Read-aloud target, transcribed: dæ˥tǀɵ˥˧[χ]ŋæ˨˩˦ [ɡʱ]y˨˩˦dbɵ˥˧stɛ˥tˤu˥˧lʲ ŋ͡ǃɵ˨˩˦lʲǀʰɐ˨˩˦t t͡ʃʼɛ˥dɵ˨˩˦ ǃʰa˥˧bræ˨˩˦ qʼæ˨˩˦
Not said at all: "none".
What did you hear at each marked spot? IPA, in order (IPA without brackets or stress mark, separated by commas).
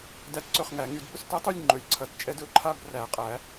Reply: χ, ŋ